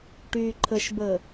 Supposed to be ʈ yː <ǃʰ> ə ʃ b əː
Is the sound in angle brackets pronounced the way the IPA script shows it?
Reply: yes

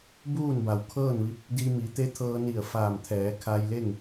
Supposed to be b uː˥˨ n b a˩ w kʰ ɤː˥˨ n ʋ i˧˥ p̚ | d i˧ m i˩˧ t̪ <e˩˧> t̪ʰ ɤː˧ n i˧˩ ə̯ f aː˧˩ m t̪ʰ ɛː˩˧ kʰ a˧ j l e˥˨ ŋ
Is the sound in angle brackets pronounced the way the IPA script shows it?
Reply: no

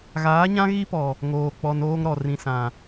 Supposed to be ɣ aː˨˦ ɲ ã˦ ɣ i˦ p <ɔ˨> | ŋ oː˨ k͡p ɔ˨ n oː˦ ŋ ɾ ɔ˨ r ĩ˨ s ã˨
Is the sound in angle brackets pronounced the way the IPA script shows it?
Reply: yes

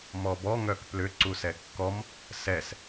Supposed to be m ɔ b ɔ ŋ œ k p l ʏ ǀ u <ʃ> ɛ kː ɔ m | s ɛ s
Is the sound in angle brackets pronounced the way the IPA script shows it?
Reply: no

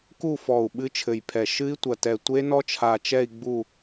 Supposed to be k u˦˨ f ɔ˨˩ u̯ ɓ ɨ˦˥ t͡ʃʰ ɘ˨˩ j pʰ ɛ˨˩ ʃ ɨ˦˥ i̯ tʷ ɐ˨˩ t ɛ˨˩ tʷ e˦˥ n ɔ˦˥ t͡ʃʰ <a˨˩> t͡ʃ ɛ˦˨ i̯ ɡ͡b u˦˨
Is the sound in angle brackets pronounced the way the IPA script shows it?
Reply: yes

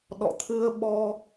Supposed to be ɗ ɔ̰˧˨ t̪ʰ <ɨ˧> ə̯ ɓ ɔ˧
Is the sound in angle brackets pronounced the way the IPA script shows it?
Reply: yes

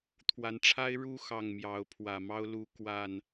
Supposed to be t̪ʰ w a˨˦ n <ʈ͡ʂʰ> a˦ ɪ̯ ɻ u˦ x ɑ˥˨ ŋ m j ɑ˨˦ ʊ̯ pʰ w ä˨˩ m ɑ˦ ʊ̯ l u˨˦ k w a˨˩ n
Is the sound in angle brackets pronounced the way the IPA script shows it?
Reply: yes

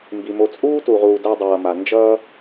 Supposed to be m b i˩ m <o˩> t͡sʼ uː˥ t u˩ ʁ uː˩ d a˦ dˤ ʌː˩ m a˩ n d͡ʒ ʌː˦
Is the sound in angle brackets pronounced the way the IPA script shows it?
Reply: no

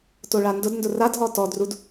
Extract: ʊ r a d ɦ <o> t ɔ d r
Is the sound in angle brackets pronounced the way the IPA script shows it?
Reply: no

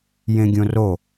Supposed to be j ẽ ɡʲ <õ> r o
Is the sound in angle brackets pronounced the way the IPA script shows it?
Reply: yes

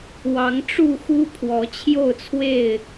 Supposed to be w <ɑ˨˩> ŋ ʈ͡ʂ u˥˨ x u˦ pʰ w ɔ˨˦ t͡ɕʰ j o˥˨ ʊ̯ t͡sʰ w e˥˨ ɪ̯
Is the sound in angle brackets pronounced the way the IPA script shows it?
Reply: no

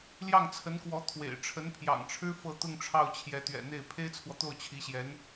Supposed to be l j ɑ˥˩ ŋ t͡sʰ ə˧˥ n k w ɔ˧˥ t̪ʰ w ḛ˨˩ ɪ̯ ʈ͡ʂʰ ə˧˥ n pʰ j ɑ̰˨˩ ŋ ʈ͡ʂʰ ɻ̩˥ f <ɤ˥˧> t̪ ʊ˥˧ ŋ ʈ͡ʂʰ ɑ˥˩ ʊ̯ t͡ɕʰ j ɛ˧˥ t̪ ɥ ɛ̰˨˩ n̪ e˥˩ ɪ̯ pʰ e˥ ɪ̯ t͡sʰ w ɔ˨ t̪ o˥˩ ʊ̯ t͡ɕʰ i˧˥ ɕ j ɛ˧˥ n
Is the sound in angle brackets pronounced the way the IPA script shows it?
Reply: yes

